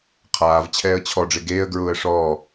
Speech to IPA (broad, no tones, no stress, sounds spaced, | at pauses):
qʰ aː v t͡ɕʰ ɛː ə̯ t͡ɕʰ ɔ ɖ͡ʐ ɪ ɡ eː ə̯ ɡ ɹ ʊː ə̯ ʂ ɔː